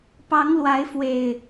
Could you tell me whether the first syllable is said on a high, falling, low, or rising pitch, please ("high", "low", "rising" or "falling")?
rising